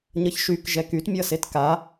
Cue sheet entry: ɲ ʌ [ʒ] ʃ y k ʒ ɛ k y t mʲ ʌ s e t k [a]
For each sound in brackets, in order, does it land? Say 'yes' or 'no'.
no, yes

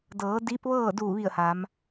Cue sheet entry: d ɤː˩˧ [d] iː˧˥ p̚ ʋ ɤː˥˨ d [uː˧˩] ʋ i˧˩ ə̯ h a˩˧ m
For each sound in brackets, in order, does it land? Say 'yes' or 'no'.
yes, yes

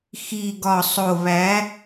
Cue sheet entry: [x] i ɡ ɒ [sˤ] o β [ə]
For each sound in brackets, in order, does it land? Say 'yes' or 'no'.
yes, yes, no

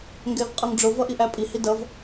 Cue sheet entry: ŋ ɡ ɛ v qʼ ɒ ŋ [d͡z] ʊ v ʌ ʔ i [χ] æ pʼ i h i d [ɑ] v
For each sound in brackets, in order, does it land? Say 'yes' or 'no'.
no, no, no

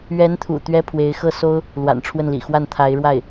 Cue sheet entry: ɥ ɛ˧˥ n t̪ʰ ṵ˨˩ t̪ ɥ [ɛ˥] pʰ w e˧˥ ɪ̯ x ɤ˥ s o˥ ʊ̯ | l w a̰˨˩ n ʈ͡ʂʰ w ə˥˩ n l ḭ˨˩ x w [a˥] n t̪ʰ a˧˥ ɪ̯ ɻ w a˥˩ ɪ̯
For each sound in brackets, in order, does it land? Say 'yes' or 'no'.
yes, no

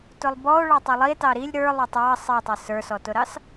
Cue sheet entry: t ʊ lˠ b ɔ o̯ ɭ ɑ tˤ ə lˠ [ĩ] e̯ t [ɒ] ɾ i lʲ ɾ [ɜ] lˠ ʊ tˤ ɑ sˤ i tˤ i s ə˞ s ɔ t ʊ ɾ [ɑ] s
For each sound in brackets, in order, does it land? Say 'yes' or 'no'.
no, no, no, yes

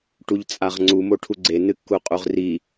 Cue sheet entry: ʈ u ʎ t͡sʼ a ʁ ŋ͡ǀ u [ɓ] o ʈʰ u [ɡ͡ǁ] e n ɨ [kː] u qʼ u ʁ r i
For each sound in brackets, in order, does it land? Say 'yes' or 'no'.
no, no, yes

